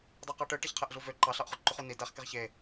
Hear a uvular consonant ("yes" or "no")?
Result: yes